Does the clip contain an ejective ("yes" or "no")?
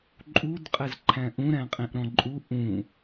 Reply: yes